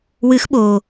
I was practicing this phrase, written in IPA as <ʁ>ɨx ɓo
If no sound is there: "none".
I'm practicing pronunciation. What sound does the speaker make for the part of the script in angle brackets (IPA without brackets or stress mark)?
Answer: w